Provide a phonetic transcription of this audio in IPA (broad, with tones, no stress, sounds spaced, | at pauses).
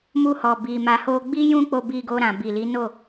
m u˧ h ɔ˨ b i˨ m a˨ h o˧ ɡ͡b i˦ j ũ˦ k͡p o˧ b i˧ ɡ o˧ ɾ ã˨ b i˨ l i˨˦ n o˦˨